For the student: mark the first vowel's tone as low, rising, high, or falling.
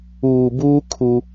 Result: low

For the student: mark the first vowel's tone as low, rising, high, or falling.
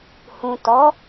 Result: low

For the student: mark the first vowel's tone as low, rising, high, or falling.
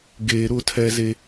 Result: low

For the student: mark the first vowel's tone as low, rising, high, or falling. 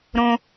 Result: low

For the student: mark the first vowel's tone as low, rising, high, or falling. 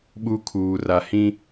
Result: high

